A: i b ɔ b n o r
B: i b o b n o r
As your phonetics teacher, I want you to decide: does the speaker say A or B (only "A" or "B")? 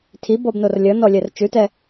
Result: A